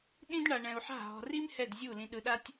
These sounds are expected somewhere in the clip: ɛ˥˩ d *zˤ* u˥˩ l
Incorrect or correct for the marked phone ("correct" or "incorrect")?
incorrect